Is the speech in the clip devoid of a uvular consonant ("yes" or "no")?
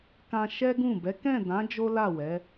yes